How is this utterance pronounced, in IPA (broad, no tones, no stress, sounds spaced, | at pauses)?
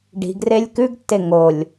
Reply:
ɖ i̤ ɡ r e lʲ k ʉ ɡ tː e ŋ o lʲ